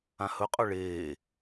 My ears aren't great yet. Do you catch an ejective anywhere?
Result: yes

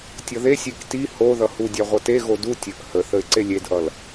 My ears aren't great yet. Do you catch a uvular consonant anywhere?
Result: yes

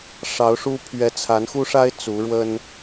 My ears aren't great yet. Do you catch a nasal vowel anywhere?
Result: no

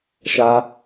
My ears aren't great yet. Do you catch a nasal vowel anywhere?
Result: no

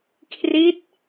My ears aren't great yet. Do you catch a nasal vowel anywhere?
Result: no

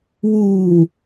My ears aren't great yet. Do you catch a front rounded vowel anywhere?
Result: no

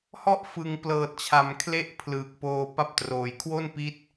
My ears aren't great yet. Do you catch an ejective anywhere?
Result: no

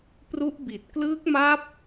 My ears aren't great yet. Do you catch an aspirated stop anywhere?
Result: no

